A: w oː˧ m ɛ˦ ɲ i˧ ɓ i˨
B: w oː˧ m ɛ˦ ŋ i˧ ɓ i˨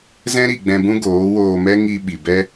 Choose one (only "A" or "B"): B